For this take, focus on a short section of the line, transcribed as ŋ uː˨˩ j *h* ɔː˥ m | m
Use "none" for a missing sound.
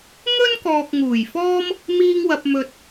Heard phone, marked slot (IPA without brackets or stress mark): f